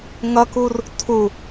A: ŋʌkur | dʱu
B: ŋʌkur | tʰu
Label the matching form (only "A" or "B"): B